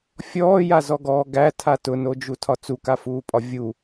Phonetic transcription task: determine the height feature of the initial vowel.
mid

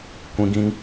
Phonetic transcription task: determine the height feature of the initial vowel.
high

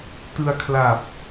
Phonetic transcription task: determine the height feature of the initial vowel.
high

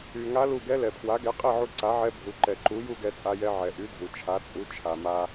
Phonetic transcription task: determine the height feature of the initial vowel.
high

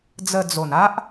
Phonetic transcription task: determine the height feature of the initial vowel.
mid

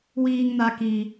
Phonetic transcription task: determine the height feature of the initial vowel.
high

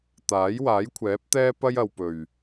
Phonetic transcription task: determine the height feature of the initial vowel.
low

